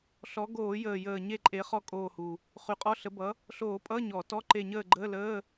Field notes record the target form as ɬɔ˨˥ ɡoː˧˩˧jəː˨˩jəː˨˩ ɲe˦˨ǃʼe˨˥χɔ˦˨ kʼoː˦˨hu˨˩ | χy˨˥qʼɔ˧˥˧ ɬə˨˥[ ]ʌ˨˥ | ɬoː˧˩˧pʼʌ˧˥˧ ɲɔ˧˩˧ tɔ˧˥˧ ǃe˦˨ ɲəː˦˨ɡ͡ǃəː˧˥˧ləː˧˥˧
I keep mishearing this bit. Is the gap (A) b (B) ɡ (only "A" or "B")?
A